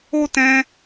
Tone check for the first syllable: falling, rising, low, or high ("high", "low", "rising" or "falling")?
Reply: high